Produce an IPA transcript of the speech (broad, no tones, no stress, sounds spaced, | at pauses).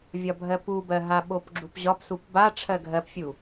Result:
vʲ ɒ bʱ ɜ p u b ɜ ɦ a ɓ o p ɡ͡ǁ u p ʑ ɒ p s u p b a ʈ͡ʂʰ ɜ ɡʱ ɜ p fʲ u